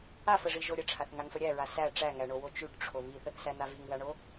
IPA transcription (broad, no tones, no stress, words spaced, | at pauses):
afəʐiʒo ɾʲəʈ͡ʂʰaθŋaŋfə ɾʲæɹa sæ ʈ͡ʂæŋæɳowo t͡ʃʉʈʈ͡ʂʰo βiθəθsæn̪a viŋðaɳo